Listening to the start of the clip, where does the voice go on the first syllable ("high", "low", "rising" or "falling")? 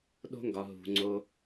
high